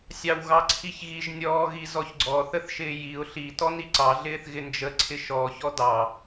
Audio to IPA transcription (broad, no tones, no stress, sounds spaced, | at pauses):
sʲ ɑ w ɣ ɑ ǀʰ i ç ɣ i ʒ nʲ ɔː ɣ i z ɔ ç ɡ͡ǀ ɔ θ ə θ ʃ ɪː j i ʊ̯ ɬ i t ɔ n i ǀ ɑ ɮ ɪː θ ɣ ɪ n d͡ʒ ə ǀʰ ɪ ʃ ɔ ç ɔ d ɑ